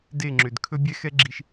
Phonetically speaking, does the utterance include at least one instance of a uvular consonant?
no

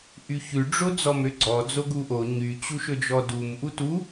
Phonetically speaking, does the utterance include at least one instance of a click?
yes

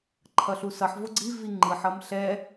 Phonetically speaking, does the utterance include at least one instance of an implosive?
no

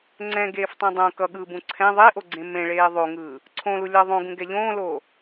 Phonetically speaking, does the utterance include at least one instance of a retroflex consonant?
yes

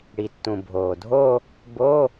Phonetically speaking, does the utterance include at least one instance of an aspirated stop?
no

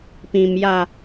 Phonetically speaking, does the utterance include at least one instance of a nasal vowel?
yes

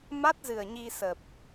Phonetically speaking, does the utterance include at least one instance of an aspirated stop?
no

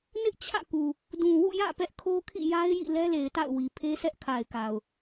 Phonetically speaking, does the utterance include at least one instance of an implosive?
no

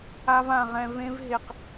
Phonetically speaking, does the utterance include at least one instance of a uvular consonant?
yes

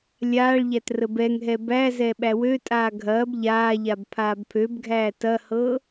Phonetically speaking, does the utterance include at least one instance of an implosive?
yes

